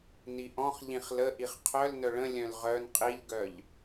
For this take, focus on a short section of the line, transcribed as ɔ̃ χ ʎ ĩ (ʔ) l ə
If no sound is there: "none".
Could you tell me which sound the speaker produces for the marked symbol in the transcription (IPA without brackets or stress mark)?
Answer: χ